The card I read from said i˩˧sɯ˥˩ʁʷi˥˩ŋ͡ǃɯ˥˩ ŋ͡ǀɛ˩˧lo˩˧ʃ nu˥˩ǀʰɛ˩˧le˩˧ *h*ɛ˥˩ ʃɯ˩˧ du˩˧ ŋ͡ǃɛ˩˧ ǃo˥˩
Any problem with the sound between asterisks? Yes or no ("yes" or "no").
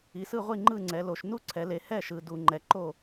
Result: no